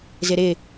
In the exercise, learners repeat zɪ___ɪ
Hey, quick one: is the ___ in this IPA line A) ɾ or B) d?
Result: A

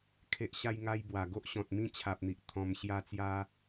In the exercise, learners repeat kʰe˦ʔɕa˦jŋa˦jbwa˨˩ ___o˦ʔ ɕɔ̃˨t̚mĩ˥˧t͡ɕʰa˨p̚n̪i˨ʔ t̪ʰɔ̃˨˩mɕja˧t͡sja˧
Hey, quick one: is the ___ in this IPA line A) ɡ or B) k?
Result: A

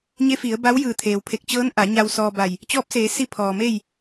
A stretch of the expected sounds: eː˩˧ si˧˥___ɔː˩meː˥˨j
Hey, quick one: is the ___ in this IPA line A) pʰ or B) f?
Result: A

